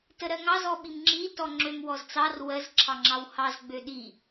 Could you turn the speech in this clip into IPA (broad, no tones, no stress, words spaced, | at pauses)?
təɾɜŋɑ zɔɓimŋ͡ǁi tɔŋ͡ǁøm wɔzt͡sɑr wɜz ǁʰɑŋ͡ǁɑwhɑz ɡ͡bøɗi